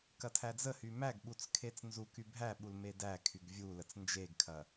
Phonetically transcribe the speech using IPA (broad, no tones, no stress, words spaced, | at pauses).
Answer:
kɐtʰæd͡zəhy mæɡɓut͡s kʰet͡snzuky bʱæɓul medækʰyɡ vʲu lət͡snd͡ʒeɡkʰɐ